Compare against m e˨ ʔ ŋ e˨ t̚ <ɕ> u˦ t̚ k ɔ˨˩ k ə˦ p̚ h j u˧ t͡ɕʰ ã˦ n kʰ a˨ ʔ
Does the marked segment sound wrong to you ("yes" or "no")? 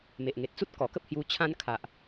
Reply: yes